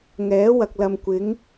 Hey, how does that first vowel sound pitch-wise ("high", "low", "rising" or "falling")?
rising